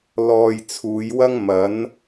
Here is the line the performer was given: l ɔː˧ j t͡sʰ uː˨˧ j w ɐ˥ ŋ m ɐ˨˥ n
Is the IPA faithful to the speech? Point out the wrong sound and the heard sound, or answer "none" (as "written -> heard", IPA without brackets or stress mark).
none